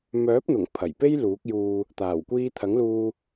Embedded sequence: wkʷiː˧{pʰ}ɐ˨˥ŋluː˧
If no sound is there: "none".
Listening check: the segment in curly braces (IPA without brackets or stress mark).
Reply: t̪ʰ